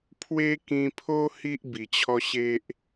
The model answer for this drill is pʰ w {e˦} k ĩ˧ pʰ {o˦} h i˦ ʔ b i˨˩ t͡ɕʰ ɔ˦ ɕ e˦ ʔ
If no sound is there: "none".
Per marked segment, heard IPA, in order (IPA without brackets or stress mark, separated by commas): e˦, o˦